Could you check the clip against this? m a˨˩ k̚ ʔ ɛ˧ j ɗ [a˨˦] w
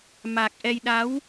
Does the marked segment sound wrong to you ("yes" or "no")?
no